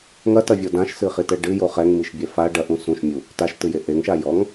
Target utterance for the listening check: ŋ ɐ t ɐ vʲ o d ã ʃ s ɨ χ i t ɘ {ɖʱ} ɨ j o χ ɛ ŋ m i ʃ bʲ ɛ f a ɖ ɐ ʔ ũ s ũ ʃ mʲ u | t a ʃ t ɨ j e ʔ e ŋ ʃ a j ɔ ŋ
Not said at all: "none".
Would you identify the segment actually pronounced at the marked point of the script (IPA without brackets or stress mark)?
ɖ